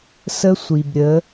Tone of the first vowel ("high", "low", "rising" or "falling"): high